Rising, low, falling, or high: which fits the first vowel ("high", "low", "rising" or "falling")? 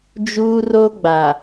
high